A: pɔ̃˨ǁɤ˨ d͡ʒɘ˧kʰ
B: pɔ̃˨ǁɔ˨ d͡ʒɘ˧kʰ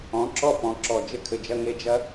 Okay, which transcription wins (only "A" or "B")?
B